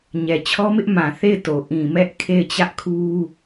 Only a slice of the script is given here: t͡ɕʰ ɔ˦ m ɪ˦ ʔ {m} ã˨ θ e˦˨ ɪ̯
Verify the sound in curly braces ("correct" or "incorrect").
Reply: correct